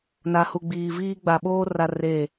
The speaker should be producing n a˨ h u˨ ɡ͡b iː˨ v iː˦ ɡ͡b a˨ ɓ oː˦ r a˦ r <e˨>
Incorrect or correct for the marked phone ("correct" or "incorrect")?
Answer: incorrect